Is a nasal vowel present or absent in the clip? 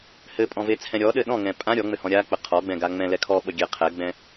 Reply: present